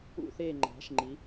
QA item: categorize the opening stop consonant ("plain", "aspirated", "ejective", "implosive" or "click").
click